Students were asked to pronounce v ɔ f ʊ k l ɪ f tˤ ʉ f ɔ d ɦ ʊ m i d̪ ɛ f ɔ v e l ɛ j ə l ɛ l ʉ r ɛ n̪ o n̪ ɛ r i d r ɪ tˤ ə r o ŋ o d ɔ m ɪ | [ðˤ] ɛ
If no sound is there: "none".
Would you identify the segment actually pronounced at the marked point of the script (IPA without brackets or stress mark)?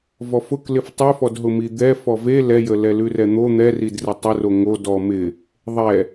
ðˤ